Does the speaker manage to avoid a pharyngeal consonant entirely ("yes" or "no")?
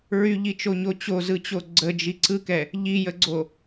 yes